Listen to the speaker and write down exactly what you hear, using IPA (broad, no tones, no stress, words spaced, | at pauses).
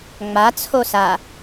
ŋ͡ma t͡sʰosa